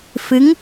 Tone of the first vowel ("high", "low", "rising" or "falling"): rising